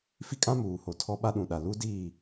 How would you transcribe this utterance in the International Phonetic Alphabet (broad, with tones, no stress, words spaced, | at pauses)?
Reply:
fi˦kʼã˦muː˨ ho˨tʰɔ˦ ɓa˦ɗũ˨ɗa˨ lu˦diː˦˨